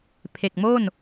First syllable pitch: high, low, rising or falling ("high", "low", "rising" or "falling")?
low